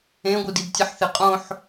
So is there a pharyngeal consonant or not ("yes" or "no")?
yes